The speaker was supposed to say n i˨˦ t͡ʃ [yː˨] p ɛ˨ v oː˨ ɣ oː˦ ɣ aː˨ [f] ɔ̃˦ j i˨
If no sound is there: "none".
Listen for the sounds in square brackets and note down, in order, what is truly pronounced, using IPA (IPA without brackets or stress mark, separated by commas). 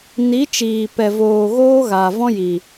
iː˨, v